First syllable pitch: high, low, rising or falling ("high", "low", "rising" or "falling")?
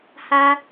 high